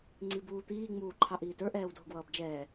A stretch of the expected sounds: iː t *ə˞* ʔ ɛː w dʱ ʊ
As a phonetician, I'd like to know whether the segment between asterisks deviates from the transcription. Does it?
no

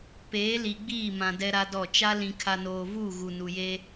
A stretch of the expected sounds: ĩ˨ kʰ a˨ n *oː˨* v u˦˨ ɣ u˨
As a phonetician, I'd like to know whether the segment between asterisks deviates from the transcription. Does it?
no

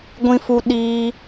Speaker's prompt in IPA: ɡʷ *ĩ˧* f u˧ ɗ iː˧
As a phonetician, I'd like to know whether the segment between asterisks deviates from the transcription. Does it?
no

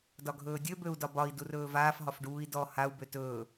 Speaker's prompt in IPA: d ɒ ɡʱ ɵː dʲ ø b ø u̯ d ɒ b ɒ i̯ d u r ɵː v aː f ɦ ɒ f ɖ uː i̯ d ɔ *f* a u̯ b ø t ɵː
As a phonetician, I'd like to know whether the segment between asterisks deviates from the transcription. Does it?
yes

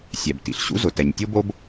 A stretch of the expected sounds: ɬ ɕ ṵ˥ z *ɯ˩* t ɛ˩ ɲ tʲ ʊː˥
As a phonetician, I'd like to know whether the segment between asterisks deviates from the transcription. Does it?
yes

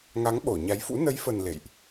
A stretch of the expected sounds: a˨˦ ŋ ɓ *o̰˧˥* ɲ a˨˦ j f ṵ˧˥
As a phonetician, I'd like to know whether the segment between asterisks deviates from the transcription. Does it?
yes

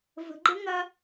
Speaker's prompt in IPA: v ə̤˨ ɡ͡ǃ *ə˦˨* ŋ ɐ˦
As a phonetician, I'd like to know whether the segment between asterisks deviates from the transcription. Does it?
yes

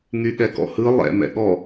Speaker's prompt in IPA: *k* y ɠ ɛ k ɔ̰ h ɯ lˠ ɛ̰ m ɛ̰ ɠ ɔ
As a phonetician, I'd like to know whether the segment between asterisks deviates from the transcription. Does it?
yes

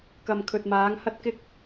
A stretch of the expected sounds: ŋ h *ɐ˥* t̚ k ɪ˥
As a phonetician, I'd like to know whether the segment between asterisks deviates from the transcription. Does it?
no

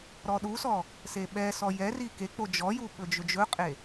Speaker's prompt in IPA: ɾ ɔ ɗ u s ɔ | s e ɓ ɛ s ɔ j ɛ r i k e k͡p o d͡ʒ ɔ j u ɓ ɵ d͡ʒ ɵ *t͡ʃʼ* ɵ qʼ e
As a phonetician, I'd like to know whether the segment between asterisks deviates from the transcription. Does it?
yes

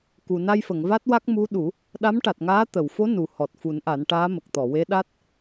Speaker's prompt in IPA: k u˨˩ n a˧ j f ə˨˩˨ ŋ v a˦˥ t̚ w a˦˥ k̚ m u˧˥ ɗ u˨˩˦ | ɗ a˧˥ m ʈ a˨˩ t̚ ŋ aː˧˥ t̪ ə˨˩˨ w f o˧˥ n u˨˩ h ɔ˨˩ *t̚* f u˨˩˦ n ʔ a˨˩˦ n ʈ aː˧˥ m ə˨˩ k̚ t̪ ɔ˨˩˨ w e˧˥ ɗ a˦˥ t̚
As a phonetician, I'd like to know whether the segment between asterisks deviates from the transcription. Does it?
no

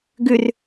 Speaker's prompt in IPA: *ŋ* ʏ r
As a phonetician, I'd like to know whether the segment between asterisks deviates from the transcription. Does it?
yes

